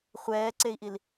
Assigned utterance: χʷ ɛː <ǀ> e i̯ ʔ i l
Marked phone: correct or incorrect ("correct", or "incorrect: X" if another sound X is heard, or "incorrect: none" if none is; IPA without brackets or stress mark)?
correct